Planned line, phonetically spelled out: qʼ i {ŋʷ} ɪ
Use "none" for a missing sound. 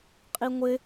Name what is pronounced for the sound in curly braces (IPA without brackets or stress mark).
ŋʷ